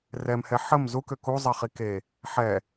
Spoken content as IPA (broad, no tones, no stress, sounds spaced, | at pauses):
r ɛ m h ɛ ħ ə m z u k ø k u zˤ ɛ χ i k e | ħ ɛ